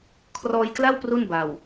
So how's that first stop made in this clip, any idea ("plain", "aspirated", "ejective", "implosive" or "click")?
aspirated